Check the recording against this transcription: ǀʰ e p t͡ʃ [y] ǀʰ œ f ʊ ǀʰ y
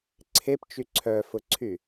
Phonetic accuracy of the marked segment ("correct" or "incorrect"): correct